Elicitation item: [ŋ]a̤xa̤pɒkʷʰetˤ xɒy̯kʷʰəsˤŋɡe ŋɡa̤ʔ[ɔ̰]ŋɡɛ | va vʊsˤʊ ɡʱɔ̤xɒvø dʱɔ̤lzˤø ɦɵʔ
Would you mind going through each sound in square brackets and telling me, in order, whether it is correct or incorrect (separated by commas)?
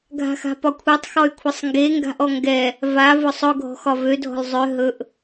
incorrect, incorrect